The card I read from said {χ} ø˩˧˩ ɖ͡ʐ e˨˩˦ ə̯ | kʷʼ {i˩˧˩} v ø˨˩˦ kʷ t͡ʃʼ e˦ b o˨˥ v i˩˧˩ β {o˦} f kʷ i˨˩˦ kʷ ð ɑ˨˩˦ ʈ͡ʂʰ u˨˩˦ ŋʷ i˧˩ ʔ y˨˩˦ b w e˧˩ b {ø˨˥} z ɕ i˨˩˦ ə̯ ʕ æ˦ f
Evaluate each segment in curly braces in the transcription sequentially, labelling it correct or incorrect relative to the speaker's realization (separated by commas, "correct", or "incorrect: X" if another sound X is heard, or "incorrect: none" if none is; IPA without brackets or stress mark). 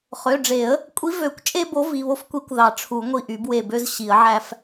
correct, incorrect: i˨˥, correct, incorrect: ø˦